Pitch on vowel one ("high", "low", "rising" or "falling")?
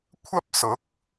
high